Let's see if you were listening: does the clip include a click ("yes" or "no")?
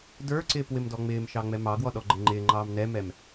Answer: yes